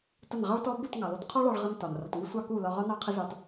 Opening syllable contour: falling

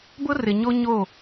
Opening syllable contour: high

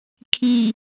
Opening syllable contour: low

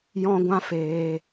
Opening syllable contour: high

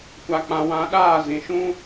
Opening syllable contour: low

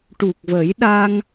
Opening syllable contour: low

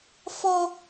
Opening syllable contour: high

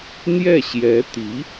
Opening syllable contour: falling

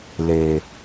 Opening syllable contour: low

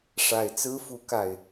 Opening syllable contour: low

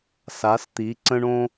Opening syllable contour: rising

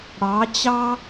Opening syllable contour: rising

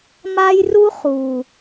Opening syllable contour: high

